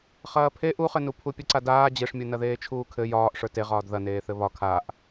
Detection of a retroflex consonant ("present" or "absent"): present